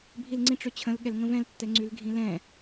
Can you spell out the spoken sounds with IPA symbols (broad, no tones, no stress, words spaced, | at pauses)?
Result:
bʱilŋ͡ǀĩʈ͡ʂøt͡ɕʰə̃l ɠɛlŋə̃vɛ̃ltːɛ ŋ͡ǀylɡʱĩlɛ̃